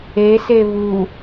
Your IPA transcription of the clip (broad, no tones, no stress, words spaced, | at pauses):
ese βu